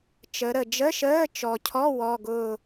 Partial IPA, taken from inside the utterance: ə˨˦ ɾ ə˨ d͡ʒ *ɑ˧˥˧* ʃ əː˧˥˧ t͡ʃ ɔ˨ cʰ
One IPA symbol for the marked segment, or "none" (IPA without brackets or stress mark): ə˧˥˧